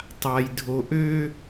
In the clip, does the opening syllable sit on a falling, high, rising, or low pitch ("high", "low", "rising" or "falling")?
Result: low